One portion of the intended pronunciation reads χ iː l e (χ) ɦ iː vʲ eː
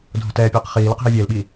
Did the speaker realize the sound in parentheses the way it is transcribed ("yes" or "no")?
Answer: no